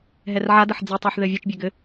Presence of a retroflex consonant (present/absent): absent